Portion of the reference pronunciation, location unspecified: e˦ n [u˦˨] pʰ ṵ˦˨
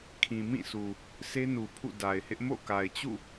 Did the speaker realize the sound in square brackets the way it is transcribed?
no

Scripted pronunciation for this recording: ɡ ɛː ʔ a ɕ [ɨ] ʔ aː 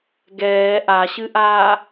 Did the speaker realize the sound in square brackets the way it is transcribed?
yes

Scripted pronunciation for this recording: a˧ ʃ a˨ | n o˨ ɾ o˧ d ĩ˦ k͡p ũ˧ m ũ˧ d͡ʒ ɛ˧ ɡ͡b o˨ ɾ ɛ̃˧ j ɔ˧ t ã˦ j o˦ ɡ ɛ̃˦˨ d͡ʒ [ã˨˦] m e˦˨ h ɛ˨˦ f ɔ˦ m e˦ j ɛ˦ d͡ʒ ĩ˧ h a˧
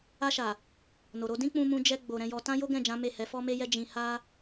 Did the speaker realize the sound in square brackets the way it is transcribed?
yes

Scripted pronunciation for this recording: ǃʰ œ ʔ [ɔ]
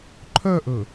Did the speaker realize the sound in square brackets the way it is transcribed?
no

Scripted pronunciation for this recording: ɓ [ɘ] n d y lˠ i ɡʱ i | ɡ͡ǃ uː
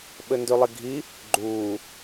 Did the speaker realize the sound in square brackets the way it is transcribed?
yes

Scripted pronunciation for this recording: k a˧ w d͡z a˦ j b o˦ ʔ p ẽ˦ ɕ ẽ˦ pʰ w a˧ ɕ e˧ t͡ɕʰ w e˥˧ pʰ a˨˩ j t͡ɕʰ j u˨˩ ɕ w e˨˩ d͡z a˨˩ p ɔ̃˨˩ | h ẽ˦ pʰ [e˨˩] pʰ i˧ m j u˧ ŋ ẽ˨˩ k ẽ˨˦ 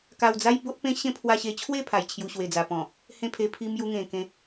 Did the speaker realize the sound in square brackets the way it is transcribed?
no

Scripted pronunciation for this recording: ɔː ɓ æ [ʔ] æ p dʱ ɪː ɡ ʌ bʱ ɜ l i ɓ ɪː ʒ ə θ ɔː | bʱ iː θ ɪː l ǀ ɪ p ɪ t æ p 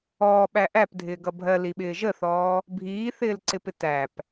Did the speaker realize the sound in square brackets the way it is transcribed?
yes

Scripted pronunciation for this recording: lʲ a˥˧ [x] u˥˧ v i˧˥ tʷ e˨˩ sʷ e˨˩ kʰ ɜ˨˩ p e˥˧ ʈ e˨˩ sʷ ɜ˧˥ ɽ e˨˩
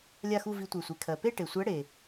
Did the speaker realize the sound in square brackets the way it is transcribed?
yes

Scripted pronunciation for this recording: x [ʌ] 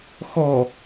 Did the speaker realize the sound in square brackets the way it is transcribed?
no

